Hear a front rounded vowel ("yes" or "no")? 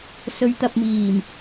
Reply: no